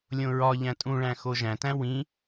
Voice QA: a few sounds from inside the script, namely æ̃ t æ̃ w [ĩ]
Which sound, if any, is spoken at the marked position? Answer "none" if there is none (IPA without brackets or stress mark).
ĩ